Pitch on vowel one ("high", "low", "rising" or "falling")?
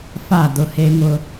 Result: falling